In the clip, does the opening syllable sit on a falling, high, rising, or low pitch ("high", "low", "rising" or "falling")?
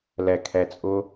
low